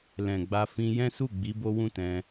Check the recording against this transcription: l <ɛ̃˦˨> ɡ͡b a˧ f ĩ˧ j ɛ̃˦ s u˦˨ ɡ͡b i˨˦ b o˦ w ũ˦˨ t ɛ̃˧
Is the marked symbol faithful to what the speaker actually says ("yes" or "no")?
no